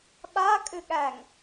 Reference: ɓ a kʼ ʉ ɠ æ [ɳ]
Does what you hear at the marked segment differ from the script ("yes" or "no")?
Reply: yes